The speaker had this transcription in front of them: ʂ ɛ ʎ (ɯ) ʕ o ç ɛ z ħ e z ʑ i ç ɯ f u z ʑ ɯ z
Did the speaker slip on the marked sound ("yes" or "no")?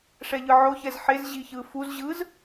no